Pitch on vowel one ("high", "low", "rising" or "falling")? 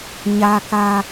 high